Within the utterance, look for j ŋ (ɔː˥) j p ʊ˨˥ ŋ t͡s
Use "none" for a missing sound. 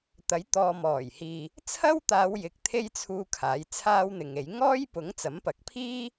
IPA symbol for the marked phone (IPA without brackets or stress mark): ɔː˥